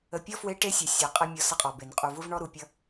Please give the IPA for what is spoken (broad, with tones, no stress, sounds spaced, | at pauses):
ə˨ pʲ ɔ˦ f w e˦ ʈ e˦ sʲ ə˨ sʲ ʌ˨˦ qʼ ɛ˦ mʲ ɔ˦ s ʌ˦ qʼ ɔ˨ b e˨ n qʼ u˨ v u˦ v ɳ ɔ˦ ɾ u˨ pʲ ʌ˦